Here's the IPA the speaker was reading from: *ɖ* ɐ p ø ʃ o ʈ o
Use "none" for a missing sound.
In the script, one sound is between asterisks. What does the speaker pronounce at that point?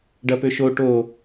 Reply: ɖ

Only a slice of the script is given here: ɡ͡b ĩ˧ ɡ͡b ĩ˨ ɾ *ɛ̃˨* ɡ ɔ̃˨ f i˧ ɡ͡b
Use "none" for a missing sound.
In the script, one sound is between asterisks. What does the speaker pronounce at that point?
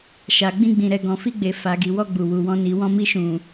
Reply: ɛ˨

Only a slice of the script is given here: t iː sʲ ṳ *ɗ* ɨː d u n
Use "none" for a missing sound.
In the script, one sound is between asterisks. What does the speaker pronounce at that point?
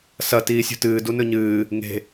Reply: t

